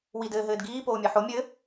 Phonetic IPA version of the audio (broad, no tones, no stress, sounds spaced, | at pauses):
w i d ɘː ɦ ɘː d ɡ iː p oː mʲ ɛ ħ o mʲ ɘ